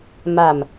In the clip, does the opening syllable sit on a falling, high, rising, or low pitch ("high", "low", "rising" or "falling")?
low